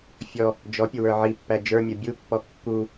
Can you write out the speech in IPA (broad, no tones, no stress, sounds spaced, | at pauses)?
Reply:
fʲ ɔ | d͡ʒ ɔ pʲ ʊ w ə˞ ʕ i pː æ d͡ʒ ə˞ mʲ ʌ bʲ u pː ɔ kː u